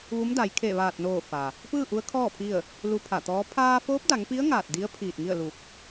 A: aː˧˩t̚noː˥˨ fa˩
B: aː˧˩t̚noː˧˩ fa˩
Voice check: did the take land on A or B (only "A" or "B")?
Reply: B